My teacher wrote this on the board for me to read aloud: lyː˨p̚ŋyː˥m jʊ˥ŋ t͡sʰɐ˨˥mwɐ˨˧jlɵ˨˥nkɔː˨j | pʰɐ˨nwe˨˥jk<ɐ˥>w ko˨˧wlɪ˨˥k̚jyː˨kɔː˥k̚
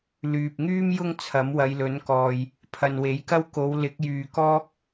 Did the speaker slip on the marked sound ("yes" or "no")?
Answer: no